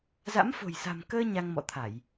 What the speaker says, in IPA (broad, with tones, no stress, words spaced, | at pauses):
za̰˧˥mfo̤˨˩jsa̤˨˩m kəː˧ ɲa˧ŋmɔ̰˧˨t̪ʰa˧˩˨j